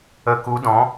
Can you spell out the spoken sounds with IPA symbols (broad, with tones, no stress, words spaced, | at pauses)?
ə˨˦ku˨˦dɔ̃˨˦